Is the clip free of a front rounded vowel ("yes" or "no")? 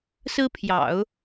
yes